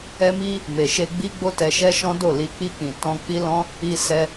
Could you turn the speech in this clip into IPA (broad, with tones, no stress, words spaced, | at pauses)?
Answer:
ɛ˧mi˧ | me˨ʃe˧ ɡ͡bi˦ɡ͡bo˦tɛ˧ ʃɛ˦ʃɔ̃˦do˦˨li˧ k͡pi˧k͡pĩ˨ tɔ̃˧k͡pi˦lɔ̃˦ | i˧ sɛ˧